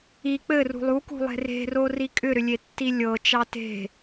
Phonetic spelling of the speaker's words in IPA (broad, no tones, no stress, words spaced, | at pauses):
i k͡pɘ rṳlˠukṳ lˠe̤re̤ro rikʼʏɾʏ lʲetːilʲɤt͡ʃɑ te̤